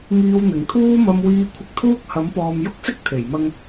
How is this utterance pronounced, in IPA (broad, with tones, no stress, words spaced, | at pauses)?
ŋiː˧wn̪ɪ˨˩ŋt̪ʰuː˥ mɐ˧mwiː˧ kʷʰɪ˧k̚t̪ʰuː˥k̚hɐ˨˥mpɔː˨m jʊ˥k̚sɪ˥k̚t̪ʰe˨˩jmɐ˧ŋ